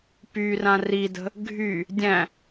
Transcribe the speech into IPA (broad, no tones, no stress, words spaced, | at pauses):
pyrã ridə̤ | ɡʱy | dʲæ̃